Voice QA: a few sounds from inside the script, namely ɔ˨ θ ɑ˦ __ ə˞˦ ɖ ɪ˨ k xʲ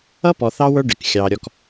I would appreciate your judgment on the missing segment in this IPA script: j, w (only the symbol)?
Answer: w